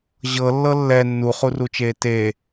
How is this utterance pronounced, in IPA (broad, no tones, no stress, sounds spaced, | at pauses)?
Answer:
ʑ ɤ lː ɤ lː ɛ nː u χ u r u t͡ʃ eː t e